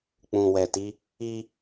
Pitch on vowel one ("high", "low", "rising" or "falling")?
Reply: low